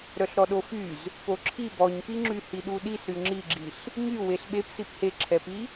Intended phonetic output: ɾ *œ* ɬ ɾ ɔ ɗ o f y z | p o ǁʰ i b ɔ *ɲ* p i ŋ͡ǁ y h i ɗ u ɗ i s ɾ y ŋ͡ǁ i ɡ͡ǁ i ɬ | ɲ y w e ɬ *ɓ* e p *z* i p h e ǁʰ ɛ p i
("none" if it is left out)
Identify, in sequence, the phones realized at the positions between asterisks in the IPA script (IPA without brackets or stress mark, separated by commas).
œ, ɲ, ɓ, s